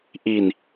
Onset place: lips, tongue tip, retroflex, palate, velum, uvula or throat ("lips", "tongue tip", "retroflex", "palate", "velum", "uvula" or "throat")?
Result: throat